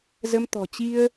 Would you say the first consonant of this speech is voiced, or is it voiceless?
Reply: voiced